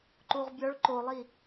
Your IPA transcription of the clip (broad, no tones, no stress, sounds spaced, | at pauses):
ǃ u ʁ bʲ ɒ ɭ ǃ o lˠ i